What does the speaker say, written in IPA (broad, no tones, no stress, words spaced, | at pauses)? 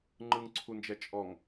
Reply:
ŋ͡ǃɯŋǀʰund͡ʒɛ t͡ʃʼɔŋ